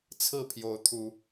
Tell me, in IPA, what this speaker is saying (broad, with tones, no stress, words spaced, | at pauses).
t͡sʰɹ̩˥˨pʰjo˨˦ʊ̯t̪ʰu˨˦